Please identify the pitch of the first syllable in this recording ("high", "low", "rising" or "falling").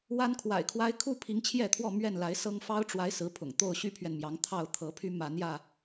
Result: high